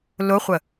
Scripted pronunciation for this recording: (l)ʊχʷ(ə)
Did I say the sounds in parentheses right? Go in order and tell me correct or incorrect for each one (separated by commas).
correct, correct